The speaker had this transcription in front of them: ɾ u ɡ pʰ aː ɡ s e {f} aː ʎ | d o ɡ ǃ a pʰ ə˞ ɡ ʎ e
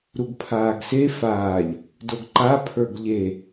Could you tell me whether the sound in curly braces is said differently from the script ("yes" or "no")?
no